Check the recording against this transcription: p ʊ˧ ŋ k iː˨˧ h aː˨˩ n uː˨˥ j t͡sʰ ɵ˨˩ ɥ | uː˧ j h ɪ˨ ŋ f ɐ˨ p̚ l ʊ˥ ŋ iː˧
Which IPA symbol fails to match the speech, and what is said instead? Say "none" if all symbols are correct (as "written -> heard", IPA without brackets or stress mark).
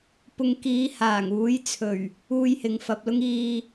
n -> ŋ